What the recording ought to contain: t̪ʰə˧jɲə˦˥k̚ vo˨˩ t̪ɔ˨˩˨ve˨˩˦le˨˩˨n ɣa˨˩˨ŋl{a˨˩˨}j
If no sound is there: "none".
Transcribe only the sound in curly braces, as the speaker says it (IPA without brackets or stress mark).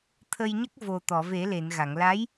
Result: a˧˥